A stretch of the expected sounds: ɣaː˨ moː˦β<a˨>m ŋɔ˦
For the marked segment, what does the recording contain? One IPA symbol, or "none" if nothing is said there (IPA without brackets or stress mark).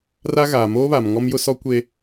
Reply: a˨